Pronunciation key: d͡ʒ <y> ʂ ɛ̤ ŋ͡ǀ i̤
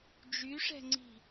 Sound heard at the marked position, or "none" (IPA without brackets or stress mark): y